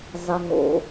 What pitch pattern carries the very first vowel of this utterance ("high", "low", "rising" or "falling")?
low